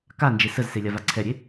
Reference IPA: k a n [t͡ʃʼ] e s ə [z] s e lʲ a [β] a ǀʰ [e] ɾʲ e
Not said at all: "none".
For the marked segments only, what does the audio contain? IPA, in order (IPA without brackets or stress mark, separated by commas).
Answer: d͡ʒ, z, v, ɛ